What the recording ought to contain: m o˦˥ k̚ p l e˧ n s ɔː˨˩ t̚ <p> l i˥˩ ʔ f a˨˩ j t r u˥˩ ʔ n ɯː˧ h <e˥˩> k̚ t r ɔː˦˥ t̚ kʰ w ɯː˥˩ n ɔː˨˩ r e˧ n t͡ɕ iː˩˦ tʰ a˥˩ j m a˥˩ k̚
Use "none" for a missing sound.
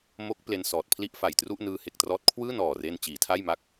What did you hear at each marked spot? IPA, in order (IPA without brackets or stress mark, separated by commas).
pʰ, e˨˩